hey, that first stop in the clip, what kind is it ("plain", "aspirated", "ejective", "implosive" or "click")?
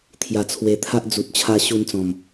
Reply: aspirated